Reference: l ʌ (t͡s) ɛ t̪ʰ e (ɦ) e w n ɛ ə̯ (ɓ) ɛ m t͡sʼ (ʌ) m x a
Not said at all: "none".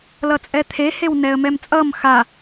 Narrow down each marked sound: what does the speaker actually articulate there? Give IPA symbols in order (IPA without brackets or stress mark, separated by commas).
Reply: t͡sʼ, h, m, ʌ